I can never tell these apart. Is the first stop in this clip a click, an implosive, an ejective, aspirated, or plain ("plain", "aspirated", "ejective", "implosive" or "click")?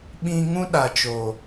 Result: implosive